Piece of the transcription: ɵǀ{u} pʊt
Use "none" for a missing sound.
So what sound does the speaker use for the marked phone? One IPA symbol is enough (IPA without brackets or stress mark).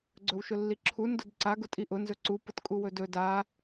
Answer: u